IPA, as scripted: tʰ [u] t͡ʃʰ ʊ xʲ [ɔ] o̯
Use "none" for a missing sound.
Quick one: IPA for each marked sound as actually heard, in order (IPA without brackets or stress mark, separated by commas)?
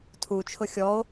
u, ɔ